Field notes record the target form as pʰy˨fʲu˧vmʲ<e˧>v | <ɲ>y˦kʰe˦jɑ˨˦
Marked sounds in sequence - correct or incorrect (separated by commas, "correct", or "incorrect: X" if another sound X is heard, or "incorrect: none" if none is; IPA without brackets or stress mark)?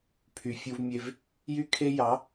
correct, incorrect: j